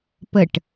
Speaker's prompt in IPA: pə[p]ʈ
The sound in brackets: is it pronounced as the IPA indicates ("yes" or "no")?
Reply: no